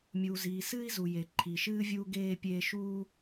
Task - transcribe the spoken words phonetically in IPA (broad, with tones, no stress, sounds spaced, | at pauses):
mʲ uː˩ z iː˩ s ɨː˥ i̯ z u˩ j e˩ ǃʰ i˩ ʃ ɨː˥ vʲ uː˥ ɡ eː˥ pʲ eː˥ ʃ uː˥